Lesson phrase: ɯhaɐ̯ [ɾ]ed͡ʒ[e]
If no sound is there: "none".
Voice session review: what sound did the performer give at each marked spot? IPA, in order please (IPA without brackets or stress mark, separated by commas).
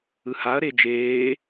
ɾ, eː